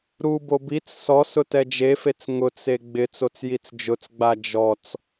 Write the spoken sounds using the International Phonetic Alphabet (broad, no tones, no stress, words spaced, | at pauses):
ɾubo bit͡s sɔsʊ tɛd͡ʒefet͡s ŋʊt͡s eɡ͡bɪt͡sot͡s jit͡sd͡ʒʊt͡sɡ͡ba d͡ʒɔt͡s